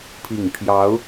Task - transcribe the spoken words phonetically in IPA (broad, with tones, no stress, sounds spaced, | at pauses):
pʰ i˨˩ ŋ pʰ j ɑ˧˥ ʊ̯